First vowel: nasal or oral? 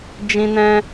nasal